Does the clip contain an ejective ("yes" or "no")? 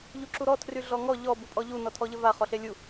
yes